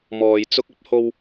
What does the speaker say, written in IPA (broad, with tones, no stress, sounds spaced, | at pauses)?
m ɔː˨ j t͡s ʊ˧ k̚ ɐ˥ p̚ h o˧ w